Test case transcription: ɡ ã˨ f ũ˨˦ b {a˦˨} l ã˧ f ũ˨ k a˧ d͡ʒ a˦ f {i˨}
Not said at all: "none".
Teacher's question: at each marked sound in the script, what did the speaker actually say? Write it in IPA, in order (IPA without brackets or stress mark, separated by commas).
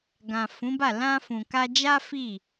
a˦˨, i˦˨